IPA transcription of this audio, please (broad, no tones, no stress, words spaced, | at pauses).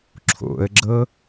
ǁʰo̰ə̯ɡ͡ǁɤ